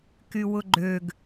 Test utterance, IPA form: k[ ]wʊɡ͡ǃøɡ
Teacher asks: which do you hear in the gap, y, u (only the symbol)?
y